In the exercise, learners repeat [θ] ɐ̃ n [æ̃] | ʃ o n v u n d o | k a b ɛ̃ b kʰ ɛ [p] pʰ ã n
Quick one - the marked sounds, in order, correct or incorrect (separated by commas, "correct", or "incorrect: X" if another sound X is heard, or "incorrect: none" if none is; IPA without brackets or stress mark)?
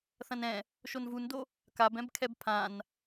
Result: correct, incorrect: ɛ̃, incorrect: b